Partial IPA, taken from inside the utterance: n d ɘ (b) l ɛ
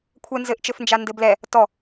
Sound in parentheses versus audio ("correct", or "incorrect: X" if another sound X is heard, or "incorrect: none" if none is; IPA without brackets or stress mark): correct